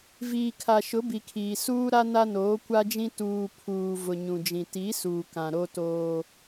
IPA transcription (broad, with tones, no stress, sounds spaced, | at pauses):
v iː˨ kʰ a˨ ʃ ʊ˨˦ b i˨ kʰ iː˨ s uː˦ ɾ a˦ n a˦ n oː˨˦ kʷ a˦ d͡ʒ ĩ˦ t uː˨ pʰ uː˨ v ʊ˨ ɲ ũ˨ d͡ʒ ĩ˨ t i˨˦ s uː˨ k ã˨ ɾ o˦ t oː˦